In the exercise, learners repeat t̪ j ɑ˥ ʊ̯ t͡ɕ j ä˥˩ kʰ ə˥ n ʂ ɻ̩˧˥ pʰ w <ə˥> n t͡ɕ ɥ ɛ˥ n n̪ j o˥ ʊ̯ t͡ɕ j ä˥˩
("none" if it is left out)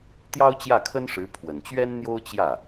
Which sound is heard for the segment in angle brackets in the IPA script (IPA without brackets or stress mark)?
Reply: ə˨˩